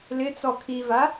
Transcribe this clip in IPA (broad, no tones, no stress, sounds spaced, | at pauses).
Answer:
l ɪ t͡s ɔ kʰ i v a